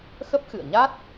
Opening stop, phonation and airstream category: plain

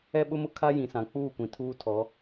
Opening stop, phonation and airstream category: implosive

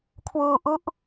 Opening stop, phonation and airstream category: aspirated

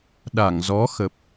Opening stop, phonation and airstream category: implosive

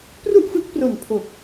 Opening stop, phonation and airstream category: plain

